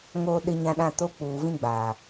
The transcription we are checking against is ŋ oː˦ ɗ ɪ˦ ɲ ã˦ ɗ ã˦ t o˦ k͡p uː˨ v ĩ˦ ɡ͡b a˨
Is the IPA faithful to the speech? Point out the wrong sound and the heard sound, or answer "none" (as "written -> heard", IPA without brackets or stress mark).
none